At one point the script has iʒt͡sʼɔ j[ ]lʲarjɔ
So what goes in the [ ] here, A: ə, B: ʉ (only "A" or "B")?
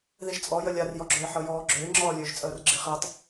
A